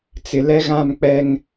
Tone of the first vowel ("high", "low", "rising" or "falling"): low